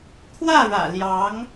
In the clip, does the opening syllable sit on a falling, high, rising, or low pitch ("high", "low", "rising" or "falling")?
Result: falling